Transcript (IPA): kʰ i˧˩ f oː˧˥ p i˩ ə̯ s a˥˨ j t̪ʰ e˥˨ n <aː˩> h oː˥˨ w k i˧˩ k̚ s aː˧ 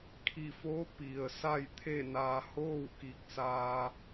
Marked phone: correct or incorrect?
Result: incorrect